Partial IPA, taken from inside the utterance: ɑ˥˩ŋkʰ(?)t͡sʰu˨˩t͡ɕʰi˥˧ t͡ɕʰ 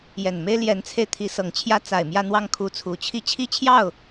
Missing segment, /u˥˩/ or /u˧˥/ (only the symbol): u˧˥